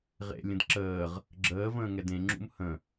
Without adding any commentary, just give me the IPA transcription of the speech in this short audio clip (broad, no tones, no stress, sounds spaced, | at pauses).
ʁ ḛ lʲ ə̃ d ǁ əː ʁ | ɡ͡ǁ əː v ə̃ː ŋ ɛ d ẽ ŋ͡ǁ ṵ m h ə̃